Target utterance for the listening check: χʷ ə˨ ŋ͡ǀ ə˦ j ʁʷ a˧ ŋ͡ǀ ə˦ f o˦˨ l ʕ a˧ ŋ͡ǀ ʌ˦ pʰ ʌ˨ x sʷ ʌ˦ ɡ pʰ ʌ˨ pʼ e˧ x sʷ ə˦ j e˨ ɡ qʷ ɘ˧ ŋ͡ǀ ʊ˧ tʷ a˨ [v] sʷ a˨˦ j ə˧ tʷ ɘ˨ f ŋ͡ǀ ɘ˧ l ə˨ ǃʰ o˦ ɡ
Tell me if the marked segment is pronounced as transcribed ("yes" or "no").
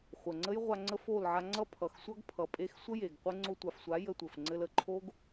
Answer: no